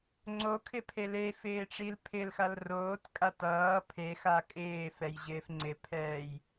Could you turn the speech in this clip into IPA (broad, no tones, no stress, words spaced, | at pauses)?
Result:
ŋ͡ǀokʰɪpʰe lefɪːʈ͡ʂil pʰɪlxal roːtkʼat ʌː pʰexa kʼɪːfɛjʑɪːf ŋ͡ǀɪpʰɛːj